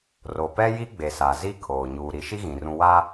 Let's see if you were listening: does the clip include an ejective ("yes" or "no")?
no